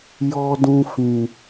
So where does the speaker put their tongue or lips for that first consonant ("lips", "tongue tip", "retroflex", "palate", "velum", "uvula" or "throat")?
palate